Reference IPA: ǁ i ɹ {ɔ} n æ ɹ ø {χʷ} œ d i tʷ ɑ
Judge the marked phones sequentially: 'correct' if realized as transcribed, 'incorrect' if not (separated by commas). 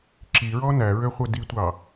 correct, correct